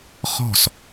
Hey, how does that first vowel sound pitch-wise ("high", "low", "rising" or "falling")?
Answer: falling